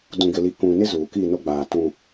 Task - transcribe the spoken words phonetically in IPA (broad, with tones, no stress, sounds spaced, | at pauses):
d ũ˨ ɡ ɪ˨ l i˨ k ũ˨ n ɪ˦ z uː˨ k i˦˨ n o˦ ɡ͡b aː˨ t ũ˦˨